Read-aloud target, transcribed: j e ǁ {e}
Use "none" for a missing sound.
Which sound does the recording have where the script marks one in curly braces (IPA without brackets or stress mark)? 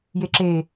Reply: e